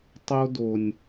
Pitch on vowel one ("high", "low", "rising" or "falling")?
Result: high